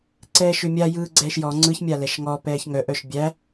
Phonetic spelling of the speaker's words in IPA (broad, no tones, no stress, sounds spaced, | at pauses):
ǀ ɛː ʃ ʏ mʲ a j ɯː ɡ͡ǀ ɛː ʃ j ɔ ŋ͡ǀ ɯ ç mʲ a l ɛ ʃ ŋ ɔ p ɛː ç ŋ œ ʔ œ ʃ bʲ æ